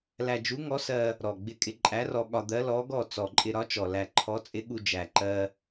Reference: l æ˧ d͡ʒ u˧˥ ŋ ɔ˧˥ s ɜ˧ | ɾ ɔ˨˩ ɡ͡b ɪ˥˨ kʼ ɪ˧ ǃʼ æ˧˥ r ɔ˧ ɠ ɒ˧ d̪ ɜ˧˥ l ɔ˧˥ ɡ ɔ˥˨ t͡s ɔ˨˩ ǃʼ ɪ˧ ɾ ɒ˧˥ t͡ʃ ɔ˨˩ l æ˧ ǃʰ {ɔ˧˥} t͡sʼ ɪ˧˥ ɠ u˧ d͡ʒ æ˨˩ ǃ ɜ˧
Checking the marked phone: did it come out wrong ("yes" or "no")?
no